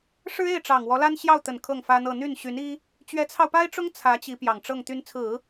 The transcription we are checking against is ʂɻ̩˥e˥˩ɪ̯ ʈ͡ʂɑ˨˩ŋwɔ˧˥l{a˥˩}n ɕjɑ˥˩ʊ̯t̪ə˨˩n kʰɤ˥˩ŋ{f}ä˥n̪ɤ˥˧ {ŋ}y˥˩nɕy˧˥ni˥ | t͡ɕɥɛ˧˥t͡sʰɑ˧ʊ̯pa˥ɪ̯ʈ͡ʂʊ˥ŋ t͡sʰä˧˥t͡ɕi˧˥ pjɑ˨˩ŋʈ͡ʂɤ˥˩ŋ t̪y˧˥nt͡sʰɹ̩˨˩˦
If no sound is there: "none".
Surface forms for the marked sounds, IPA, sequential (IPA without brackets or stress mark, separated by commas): a˥, f, n̪